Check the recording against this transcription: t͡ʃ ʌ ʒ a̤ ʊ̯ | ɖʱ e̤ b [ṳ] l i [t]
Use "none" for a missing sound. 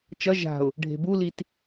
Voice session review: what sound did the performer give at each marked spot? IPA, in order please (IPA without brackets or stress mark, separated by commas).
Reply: u, t